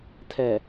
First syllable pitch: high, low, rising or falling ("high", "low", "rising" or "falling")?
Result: low